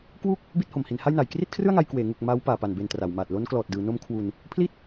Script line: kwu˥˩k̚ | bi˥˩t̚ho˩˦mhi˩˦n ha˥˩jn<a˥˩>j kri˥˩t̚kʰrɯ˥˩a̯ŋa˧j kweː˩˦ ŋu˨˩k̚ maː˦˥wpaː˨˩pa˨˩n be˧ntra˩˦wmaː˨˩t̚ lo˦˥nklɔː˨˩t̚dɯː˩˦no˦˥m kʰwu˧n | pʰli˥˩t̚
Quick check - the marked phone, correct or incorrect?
incorrect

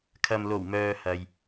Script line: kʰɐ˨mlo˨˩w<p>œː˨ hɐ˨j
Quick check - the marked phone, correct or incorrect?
incorrect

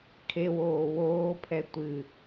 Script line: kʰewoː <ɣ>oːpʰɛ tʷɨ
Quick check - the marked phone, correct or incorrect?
incorrect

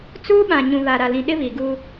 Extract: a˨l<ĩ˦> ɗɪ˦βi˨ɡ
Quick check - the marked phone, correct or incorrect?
incorrect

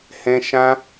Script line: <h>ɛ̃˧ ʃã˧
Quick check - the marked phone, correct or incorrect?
correct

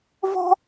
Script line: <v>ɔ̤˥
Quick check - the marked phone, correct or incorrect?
correct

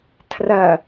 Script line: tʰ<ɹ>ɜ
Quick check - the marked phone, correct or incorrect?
incorrect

